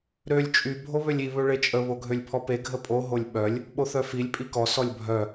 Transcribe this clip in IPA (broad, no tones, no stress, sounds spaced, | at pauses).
ɾ ø lʲ t͡ʃʼ y bʱ o β ø lʲ i β ø ɭ e t͡ʃʼ ə β o ɡʱ ø lʲ pʰ ɔ p e ɡʱ ə pʼ o ɦ o lʲ ɓ œ lʲ | ɓ o θ œ f i lʲ pʼ i k ɔ s ɔ lʲ bʱ œ